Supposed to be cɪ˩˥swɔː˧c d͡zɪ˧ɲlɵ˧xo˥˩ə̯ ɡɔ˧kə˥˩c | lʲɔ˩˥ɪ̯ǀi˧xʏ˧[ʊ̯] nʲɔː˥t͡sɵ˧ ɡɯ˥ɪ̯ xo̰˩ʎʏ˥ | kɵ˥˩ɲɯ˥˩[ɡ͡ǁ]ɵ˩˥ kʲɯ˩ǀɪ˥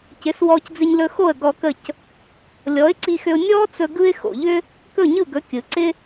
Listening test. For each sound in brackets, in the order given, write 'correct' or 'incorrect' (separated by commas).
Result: correct, incorrect